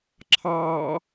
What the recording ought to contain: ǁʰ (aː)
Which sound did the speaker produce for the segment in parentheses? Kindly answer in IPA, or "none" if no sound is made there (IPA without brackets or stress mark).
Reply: ɑː